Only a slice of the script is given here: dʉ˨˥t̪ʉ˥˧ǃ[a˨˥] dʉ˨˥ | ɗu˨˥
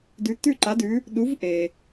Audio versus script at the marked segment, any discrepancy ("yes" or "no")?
no